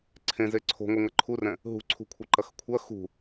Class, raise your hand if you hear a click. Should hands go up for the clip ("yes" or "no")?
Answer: yes